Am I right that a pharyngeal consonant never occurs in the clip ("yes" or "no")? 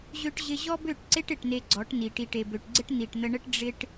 yes